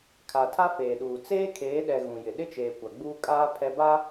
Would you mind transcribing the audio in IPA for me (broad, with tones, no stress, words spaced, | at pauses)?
kʰa˨tʰa˦ feː˨ɗuː˨ t͡seː˦kʰeː˨˦ɗɛ˨ ɣũ˨jɪ˨ ɗɪ˦t͡ʃeː˨ kʷa˨ ɡ͡buː˦ kʼaː˦ pʰɛ˦ ba˦